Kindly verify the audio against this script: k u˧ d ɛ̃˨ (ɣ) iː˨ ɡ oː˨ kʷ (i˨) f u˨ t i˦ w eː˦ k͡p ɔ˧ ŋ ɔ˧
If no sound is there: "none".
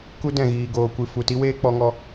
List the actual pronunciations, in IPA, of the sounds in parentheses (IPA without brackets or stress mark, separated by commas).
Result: ɣ, ɨ˨